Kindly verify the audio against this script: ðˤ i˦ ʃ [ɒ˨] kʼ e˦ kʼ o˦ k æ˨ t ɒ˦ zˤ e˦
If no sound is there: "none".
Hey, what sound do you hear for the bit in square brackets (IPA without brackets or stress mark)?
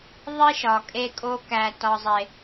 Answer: ɒ˨